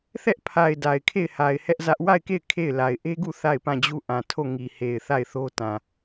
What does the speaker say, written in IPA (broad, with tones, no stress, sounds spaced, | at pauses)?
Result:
θ ɛ˦ ʔ pʰ a˨ ɪ̯ d a˨ ɪ̯ kʰ e˦˨ ɪ̯ h a˨ ɪ̯ h ɛ˦ ʔ z ä˦ ʔ w a˦˨ ɪ̯ k e˦˨ ɪ̯ kʰ e˦˨ ɪ̯ l a˨ ɪ̯ ʔ e˦ ɡ u˦˨ θ a˦˨ ɪ̯ p ã˦˨ d͡ʑ u˦˨ ʔ ã˨ tʰ o˦˨ ŋ i˨ h e˨ ɪ̯ θ a˦˨ ɪ̯ θ o˦ t ã˨